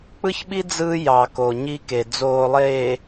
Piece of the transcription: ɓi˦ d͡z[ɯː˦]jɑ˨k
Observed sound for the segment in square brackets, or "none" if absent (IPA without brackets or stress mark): ɯː˦